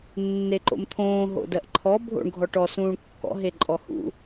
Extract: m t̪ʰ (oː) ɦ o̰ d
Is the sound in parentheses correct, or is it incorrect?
incorrect